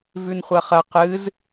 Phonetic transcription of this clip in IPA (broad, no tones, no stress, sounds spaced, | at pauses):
v ʉ n χʷ ɐ χ ɐ q ɨ z